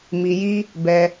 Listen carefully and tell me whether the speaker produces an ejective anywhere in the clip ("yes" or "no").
no